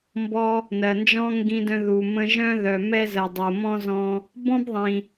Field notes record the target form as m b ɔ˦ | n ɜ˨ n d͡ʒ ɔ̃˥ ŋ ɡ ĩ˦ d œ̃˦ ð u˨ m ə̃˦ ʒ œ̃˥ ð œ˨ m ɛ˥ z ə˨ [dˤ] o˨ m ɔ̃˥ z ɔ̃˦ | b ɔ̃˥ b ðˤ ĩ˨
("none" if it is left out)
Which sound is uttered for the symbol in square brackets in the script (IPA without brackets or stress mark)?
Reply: dˤ